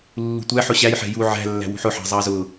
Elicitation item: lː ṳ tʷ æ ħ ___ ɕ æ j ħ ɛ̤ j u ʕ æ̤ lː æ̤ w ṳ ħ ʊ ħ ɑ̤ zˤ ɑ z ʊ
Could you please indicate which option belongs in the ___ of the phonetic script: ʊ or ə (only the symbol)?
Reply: ʊ